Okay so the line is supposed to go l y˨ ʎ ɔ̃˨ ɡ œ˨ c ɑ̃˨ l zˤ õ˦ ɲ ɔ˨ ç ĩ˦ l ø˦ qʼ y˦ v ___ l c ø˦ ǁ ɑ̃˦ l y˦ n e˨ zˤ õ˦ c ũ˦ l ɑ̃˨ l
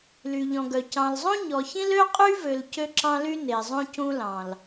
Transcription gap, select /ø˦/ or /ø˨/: ø˨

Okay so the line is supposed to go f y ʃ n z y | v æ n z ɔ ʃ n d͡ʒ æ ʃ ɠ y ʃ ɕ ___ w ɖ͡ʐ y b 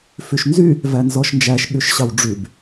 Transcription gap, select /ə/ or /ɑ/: ɑ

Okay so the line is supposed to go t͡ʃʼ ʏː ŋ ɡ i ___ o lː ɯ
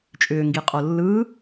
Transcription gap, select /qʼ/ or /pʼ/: qʼ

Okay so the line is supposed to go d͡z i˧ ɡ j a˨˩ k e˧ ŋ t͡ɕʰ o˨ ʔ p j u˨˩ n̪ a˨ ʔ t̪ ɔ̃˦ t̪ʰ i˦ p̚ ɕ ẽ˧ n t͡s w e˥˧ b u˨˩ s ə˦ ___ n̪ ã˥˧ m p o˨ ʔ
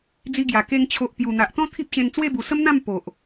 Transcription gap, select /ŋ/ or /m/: m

